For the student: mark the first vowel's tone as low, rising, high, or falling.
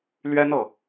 high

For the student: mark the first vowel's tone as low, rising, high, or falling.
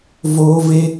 high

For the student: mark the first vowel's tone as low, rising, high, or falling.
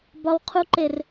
low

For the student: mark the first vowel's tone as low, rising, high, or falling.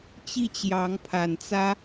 falling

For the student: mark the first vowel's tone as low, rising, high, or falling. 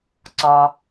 low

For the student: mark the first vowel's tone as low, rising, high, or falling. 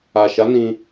low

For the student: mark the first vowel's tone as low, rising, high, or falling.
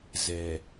low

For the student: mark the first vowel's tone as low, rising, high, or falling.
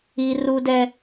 high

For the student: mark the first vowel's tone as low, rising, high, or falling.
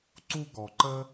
high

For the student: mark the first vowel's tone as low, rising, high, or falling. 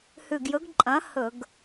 low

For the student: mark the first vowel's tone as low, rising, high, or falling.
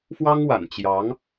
high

